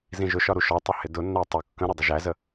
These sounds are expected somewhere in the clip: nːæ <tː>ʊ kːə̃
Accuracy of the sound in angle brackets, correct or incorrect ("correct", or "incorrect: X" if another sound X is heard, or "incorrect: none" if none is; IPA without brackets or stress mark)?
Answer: incorrect: tˤ